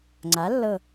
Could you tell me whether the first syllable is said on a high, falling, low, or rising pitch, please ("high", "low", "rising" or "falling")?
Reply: rising